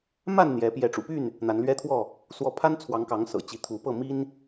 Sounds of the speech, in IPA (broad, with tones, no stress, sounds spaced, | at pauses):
m a˥˨ n n̪ j ɛ˨˦ p j ɛ˨˦ ʈ͡ʂ ṵ˨˩ p y˥˨ n | n̪ a˨˦ n l ɥ ɛ˦ t̪ʰ w ɔ˥˨ | s w ɔ˨˦ pʰ a˦ n t͡sʰ w ɑ˨˦ ŋ k ɑ˨˦ ŋ s ɤ̰˨˩ t͡ɕ i˨˦ t̪ʰ u˨˦ p ɤ˥˨ m i˦ n